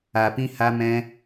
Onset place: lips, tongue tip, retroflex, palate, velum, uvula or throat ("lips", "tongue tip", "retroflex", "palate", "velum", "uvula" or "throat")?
lips